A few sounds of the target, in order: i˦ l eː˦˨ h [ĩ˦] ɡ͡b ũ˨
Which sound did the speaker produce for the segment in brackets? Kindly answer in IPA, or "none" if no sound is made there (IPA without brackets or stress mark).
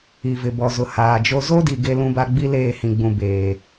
ĩ˨